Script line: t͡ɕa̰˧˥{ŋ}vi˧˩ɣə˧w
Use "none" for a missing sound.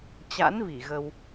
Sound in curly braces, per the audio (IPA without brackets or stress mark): n